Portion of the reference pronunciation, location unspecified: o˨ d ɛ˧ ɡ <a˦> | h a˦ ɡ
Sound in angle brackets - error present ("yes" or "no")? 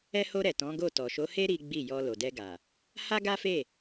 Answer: yes